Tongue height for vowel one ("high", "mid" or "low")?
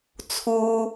high